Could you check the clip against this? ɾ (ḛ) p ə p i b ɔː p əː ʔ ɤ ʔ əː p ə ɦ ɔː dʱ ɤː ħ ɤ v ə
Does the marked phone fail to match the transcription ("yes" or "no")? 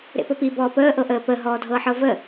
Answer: no